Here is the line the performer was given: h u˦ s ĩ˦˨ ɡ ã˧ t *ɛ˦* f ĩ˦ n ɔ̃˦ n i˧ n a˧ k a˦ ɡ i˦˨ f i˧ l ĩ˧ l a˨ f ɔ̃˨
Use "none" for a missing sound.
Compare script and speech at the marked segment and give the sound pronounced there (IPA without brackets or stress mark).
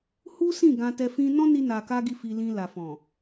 ɛ˧